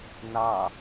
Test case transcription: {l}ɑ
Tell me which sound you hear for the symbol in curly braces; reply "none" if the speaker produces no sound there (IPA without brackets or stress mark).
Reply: n